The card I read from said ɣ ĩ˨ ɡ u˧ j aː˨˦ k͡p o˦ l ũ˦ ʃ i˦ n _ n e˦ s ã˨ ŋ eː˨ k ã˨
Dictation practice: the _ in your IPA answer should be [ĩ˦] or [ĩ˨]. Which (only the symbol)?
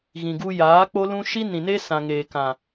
ĩ˨